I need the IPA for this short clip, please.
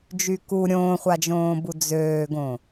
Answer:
d͡ʒ y k u ɾʲ õː χʷ a d͡ʒ õː b u d͡z øː ɡ õ

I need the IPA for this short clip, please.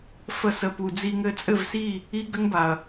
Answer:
f ə˦ s ə˧ p u˧ d͡z i˧ ŋ ɘ˧ t͡sʼ ɘ˦˨ v s i˦˨ | i˦ ɡ ə˦ ŋ b a˨ ɐ̯

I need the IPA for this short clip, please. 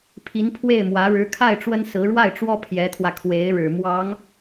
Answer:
pʰ i˧˥ n pʰ w e˥˩ ɪ̯ m w ä˧˥ ɻ ɻ̩˧˥ kʰ a˥˩ ɪ̯ ʈ͡ʂ w ə˥ n s ɹ̩˧˥ ɻ w a˥˩ ɪ̯ ʈ͡ʂ w ɔ˥ pʰ j ɛ˧˥ t̪ʰ w ä˧ kʰ w e˧˥ ɪ̯ ɻ ɻ̩˨˩ m w ɑ˧˥ ŋ

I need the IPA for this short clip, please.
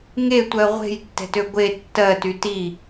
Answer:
ŋ e tʷ ɜ ʁʷ e̤ j tː ɛ̤ t ø ɡʷ e tː ɜ t y t i

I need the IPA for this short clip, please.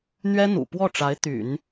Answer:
n̪ ɥ ɛ˥ n̪ ṵ˨˩ p w ɔ˥˩ ʈ͡ʂ a˧˥ ɪ̯ t̪ y̰˨˩˦ n

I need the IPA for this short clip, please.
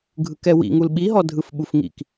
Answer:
ɡʱ ɯ k ɛ w ḭ ŋ u l ɓ i ɦ ɔ dʱ ɯ f ɓ u f ŋ ḭ k

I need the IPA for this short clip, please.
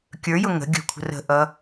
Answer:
kʲ ə˞ j ʊ ŋ ə̤ ɡʲ ə̤ kʷʰ ə̤ r ə̤ ʔ ʌ

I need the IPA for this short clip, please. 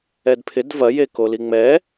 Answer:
ɛ d pʰ ɪ d v ɐ j e k o l i ŋ͡m ɛ

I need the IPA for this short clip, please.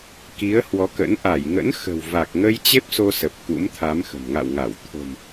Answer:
k i˨˦ ə̯ h w ɔ˨˦ k ə̰˧˥ n ʔ a˧˩ j ŋ ə̰˧˥ n x ə̤˨˩ w v a˨˩ k̚ ŋ ə˧ j t͡ɕ e˦˥ p̚ s o˧ s ə˨˩ p̚ k ṵ˧˥ m t̪ʰ a˨˦ m x ə̤˨˩ m ŋ a̰˧˨ w ŋ a˧˩ w t̪ʰ o̤˨˩ m

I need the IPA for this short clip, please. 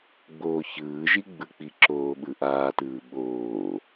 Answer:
ɡ͡b oː ç ɯː ʒ i ɡ͡b ɯ k͡p i ǁ oː ɓ ɯ ʔ aː t ɯː ɓ oː

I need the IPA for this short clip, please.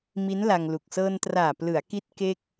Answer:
m i˦˥ n l a˧ ŋ l u˨˩ k̚ s ɤː˧ n t r aː˨˩ p l ɯ˩˦ a̯ k i˦˥ t̚ k e˥˩ k̚

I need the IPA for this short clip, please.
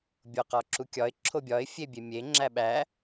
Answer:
bʲ o q ɒ ǁ u kʲ ɒ ɪ̯ ǁʰ o bʲ ɒ ɪ̯ fʲ e bʲ e mʲ e ŋ͡ǁ æ ɓ æ

